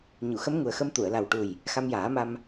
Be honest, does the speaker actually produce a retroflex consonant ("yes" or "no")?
yes